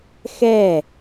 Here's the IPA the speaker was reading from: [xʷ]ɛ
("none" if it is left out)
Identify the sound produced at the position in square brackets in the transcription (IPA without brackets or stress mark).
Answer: x